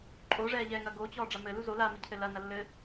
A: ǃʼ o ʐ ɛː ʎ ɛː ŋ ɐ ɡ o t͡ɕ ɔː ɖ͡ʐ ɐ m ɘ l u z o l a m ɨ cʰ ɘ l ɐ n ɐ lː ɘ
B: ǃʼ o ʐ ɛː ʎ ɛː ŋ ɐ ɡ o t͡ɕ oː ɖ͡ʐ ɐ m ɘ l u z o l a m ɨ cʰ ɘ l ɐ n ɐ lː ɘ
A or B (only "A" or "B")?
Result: A